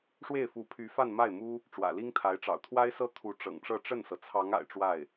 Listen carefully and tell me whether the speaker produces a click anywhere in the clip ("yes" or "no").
no